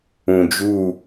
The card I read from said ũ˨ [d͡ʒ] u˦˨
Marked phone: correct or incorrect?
correct